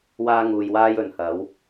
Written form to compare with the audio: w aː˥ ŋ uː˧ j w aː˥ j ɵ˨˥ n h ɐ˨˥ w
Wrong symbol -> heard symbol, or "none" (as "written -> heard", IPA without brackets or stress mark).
none